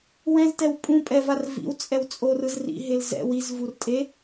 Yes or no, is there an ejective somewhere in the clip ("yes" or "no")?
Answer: yes